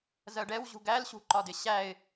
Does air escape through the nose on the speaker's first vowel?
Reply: no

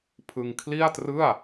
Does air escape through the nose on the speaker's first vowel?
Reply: no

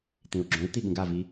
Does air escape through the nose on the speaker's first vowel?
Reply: yes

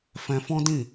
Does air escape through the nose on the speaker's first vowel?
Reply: yes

